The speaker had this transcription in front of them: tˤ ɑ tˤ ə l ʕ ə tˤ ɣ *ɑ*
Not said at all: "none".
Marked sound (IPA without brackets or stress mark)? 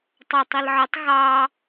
ɑ